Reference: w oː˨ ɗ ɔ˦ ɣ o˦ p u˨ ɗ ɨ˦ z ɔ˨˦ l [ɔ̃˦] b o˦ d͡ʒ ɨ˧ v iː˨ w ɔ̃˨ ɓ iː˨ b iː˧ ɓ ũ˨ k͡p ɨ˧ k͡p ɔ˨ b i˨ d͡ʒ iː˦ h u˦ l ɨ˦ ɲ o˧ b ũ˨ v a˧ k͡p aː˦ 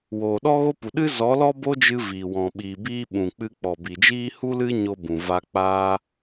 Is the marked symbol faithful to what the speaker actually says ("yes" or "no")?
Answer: no